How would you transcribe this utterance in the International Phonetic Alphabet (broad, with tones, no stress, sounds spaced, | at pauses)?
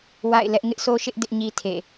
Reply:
w a̰˦˨ ɪ̯ l ɛ˦ ʔ ŋ ɪ˦ ʔ sʰ o˦ ʃ ɪ˦ ʔ d ɪ˦ ʔ ɲ i˦ tʰ ḛ˦˨